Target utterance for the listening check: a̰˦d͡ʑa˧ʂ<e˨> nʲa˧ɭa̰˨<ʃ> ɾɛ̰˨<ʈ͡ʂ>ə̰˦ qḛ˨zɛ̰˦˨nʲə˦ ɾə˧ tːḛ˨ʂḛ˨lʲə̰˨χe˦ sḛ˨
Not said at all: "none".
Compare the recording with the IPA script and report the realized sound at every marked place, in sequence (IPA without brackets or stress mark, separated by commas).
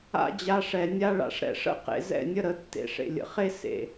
ɛ˨, ʂ, ʂ